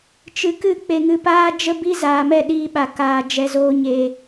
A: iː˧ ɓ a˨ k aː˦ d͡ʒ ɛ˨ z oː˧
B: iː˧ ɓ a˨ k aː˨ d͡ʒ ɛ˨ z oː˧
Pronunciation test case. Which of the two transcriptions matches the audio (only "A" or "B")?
B